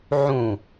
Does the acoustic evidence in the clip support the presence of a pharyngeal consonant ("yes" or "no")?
yes